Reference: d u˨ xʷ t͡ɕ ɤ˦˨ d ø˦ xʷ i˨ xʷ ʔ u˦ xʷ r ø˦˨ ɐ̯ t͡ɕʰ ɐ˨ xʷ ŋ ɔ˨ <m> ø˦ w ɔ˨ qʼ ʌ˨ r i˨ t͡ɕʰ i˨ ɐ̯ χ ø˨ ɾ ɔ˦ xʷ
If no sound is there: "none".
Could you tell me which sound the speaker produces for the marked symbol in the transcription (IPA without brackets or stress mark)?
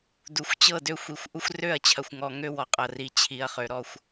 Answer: ŋ